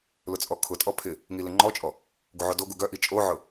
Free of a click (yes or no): no